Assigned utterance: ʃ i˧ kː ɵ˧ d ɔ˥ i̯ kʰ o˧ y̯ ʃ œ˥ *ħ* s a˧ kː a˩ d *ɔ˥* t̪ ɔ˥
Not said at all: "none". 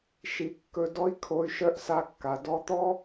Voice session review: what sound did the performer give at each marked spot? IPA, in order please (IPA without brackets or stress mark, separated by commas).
ʔ, ɔ˧